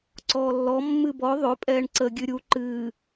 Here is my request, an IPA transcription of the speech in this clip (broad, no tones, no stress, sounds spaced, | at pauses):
ǀ ɔː lː ɔ mː ɨ b ɔ ðˤ ø pʼ ɛː ɳ ǀ ə ɡʲ ɨ ɾʲ u ǃ ɨː